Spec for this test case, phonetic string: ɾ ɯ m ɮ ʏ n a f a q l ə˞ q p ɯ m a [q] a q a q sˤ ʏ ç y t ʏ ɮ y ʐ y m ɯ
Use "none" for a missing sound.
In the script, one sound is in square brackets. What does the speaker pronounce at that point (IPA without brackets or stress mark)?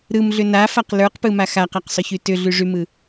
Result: x